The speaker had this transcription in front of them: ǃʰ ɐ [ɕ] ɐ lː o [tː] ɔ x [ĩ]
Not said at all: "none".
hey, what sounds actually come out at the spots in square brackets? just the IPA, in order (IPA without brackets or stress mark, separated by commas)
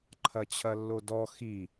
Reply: t͡ɕʰ, d, i